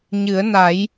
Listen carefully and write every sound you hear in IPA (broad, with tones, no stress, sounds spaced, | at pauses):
ɲ ɨ˨˩˦ ə̯ n a˨˩˦ j